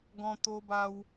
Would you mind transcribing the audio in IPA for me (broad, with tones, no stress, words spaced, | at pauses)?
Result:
ɡɔ̃˧t̪o˧ba˧w